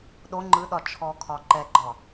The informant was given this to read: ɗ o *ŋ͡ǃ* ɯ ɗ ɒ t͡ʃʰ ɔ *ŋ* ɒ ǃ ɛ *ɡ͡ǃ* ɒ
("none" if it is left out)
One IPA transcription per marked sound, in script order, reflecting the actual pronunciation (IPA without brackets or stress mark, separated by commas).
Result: ŋ͡ǃ, kʰ, ɡ͡ǃ